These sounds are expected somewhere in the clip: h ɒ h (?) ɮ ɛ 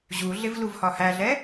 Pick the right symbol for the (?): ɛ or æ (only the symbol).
æ